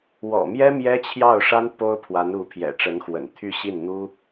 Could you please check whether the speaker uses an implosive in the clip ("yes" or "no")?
no